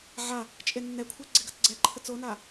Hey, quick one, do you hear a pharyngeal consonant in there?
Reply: yes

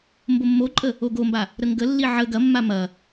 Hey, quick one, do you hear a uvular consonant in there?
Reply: no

